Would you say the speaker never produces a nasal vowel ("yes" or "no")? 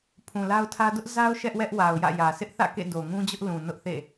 no